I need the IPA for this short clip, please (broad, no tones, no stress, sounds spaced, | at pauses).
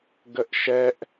ɡ ə ʔ ʃ ɛ ʔ